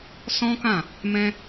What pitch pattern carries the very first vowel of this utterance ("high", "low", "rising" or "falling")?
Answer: high